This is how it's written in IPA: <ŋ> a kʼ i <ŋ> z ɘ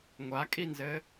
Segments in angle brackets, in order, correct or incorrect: incorrect: ŋʷ, incorrect: n

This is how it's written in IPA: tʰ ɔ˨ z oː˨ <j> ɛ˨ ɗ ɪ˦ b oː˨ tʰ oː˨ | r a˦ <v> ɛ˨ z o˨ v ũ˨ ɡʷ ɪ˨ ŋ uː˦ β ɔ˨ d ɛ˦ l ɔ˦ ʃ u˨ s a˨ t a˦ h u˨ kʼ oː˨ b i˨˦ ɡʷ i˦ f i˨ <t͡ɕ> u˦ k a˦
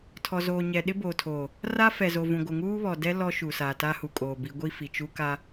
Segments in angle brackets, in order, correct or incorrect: incorrect: ɲ, incorrect: f, incorrect: t͡ʃ

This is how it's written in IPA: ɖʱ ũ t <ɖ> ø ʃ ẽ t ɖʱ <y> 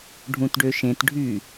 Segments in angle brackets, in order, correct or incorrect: correct, correct

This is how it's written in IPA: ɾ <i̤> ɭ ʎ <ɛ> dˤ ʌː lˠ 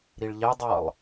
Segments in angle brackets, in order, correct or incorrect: incorrect: i, correct

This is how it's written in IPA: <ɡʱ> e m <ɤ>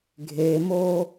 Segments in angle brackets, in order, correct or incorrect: correct, incorrect: o

